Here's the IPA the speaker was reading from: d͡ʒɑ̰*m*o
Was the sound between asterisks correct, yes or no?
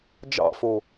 no